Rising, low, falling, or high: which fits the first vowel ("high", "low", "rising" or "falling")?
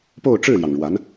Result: falling